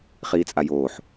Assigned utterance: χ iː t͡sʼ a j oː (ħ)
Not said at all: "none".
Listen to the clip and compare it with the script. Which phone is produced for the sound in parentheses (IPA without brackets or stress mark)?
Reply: ħ